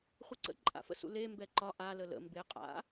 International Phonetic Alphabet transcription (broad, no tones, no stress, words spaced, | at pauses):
χʷeǀə̰ ǃʼa̰fə̰sṵ le mbɛǃɒ ʔa lələ̰ mbe qʼa̰